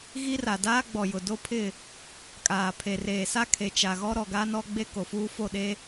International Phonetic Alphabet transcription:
ɣ i˦ r a˨ d aː˦ ɡ͡b ɔ˨ j ʊ˨ d o˦ pʰ ɪ˦˨ | kʼ aː˨ pʰ e˨ r eː˨ s a˦ kʰ e˨ t͡ʃ a˨ ɣ ɔ˦ ɾ ɔ˨ ɡ a˦ n ɔ˦ ɡ͡b e˦ k o˨ f uː˦ f o˦˨ ɗ e˦

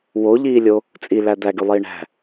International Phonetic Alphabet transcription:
w o ʎ iː lʲ o | t͡sʼ i l æ d̪ æ ɡ y lˠ iː ɳ æ̤

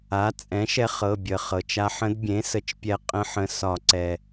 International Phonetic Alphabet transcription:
a˩˥ t͡sʼ ɛ̃˩˥ ʃ ɛ˧ χ ɤ˩˧˩ bʲ ə˩ χ ɤ˩ t͡ʃ a˧ ħ ə̃˧˥ d bʲ ẽ˩˥ s ə˩˥ t͡ʃ pʲ ɛ˧ qʼ ə̃˧˥ ħ ə̃˩˧˩ s ɒ˨˩˦ ǀ ɛ˩

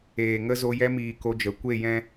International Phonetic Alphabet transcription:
eː˨ ŋ ə˦ z o˧ j ɛ˧ m iː˨ k o˧ d͡ʒ ə˨ kʷ e˦˨ j ɛ̃˦

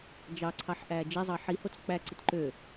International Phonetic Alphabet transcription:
d͡ʒ ɑ ǀʰ ɑ ħ ʔ æː d͡ʒ e zˤ ɑ ħ i h o t͡s k͡p æ ǀ i t ǃ ø

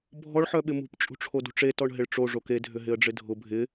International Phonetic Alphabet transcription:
bʱ ɔ ɭ ħ œ ɓ ɪ m ṳ p t͡ʃʼ ṳ ʈ͡ʂʰ o d ṳ ʈ͡ʂ e t ɔ ɳ ɦ ɪ ɭ ʈ͡ʂ o ʐ o k e dʱ ʏ ɦ ɪ ə̯ ɖ͡ʐ ɪ dʱ ʊ bʱ ɪ

